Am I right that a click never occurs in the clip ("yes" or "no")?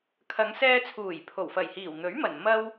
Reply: yes